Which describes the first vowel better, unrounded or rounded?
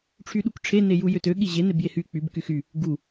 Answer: rounded